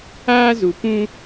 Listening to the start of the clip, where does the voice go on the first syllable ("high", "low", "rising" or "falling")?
high